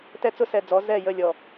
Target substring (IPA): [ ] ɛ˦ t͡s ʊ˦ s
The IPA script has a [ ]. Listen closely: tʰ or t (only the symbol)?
t